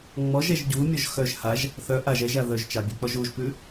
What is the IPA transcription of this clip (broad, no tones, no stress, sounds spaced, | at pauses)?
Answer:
ŋ͡m ɔ ʒ ɛ ʒ ɟ u mʲ ɔ ʒ x œ ʒ h a ʒ | θ œ ʔ a ʒ ɛ ʒ a ð œ ʒ t͡ʃ ɑ bʲ ʉ k͡p ɔ ʒ u ʒ p ʉ